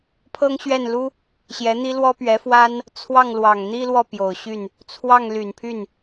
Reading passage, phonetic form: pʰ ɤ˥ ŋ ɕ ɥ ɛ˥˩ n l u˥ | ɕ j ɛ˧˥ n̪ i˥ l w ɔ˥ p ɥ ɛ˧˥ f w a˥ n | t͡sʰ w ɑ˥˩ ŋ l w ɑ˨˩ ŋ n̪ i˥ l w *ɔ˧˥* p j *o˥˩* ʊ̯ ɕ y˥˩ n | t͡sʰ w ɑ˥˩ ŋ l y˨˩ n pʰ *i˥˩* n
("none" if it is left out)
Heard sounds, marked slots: ɔ˥˩, o˨˩, y˥˩

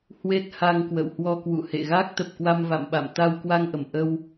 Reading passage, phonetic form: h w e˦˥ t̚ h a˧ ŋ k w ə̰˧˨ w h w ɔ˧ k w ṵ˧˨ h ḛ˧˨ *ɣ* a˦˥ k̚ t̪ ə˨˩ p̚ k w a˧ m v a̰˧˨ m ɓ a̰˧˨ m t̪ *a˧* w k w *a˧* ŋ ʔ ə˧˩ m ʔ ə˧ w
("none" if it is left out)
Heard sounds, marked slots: ɣ, a˧, a˧

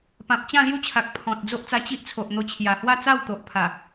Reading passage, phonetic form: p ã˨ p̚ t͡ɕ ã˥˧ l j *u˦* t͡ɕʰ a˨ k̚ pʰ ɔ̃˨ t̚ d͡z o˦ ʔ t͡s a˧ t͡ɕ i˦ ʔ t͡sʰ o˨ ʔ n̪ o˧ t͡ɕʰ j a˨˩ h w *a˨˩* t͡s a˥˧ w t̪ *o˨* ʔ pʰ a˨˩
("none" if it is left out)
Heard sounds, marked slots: u˦, a˥˧, o˨

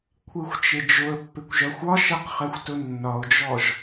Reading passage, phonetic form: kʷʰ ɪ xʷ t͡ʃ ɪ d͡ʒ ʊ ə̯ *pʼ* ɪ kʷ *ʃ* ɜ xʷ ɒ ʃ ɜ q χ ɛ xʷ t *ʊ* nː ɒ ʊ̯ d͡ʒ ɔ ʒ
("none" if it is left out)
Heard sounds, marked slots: pː, ʒ, ʊ

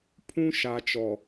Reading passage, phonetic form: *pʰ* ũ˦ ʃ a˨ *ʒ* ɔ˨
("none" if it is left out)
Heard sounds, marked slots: pʰ, t͡ʃ

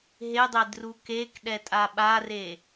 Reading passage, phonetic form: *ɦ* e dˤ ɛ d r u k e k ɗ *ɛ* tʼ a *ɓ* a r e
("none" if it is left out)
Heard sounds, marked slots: ɦ, ɛ, ɓ

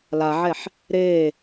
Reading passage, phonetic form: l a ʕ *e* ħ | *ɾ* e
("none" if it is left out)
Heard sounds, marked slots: ɛ, ɾ

